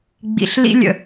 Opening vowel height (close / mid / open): close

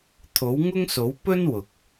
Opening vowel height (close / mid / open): mid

